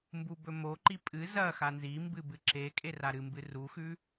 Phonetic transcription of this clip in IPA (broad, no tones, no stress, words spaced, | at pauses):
mbubɵmoǃi pʼɨ zɐ xanzimbɨ bɨǁe kʼeraɾɨmbɨ ruxʉ